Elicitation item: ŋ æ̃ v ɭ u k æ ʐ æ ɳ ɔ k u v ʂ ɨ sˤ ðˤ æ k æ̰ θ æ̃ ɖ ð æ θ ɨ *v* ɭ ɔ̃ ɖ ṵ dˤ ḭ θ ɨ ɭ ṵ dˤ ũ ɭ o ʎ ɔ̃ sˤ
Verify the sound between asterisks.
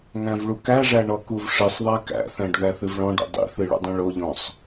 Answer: correct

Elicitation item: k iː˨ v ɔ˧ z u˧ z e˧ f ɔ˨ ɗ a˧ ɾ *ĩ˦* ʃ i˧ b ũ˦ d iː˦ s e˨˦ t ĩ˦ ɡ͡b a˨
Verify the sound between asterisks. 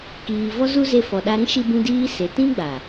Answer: correct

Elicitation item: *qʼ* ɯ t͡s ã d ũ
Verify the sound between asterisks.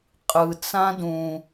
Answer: correct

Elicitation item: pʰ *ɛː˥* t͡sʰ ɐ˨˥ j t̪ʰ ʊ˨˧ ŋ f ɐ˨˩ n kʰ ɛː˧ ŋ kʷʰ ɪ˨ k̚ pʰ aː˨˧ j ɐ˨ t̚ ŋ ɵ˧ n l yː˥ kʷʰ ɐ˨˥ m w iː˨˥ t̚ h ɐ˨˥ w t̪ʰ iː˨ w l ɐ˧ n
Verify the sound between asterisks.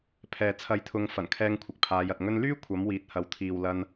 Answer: incorrect: ɛː˨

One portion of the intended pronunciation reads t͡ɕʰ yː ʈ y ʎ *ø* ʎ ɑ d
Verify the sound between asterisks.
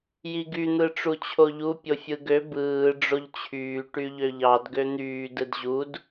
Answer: correct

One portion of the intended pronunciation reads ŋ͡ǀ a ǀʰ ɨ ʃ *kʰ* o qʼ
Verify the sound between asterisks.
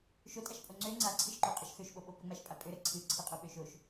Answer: incorrect: ǃ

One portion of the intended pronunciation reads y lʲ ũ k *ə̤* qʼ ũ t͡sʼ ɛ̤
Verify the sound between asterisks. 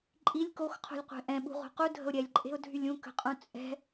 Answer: correct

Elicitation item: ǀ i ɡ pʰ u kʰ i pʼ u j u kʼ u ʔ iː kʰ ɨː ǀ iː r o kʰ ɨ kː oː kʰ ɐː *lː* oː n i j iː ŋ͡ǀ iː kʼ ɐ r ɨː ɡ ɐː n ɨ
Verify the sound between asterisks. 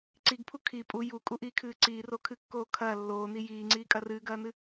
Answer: correct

